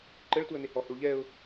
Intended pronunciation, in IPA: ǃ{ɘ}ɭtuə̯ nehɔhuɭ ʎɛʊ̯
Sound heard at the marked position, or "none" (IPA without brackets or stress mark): ɘ